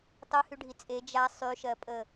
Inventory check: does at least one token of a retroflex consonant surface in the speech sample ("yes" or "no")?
yes